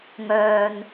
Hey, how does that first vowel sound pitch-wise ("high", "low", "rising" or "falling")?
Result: low